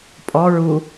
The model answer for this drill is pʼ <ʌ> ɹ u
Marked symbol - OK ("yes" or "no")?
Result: no